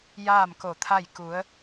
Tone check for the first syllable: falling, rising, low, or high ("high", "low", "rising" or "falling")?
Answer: falling